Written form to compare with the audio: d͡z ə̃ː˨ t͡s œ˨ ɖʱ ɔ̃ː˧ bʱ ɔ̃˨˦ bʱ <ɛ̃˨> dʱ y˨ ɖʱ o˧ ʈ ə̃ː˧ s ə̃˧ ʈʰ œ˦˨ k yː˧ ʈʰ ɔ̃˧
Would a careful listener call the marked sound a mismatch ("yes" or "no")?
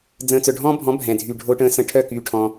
no